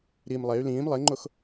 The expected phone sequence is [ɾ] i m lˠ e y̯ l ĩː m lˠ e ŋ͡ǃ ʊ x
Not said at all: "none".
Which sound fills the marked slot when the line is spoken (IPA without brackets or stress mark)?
ɾ